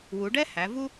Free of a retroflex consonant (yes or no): no